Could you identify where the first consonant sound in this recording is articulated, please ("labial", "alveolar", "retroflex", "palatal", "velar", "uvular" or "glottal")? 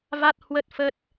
labial